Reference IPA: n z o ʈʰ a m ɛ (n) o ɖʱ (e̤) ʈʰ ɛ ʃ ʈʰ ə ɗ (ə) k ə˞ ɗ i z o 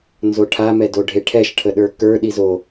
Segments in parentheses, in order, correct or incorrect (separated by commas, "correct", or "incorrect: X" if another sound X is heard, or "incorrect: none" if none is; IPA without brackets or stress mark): incorrect: d, incorrect: e, incorrect: ə˞